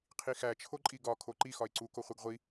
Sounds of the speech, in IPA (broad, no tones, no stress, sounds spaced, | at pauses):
qʰ i x æ t͡ʃʰ o ǃʼ i ɡ ɒ kʰ o ǃ i x ɒ ɪ̯ ǀ u k o χʷ e ɡ ʁʷ i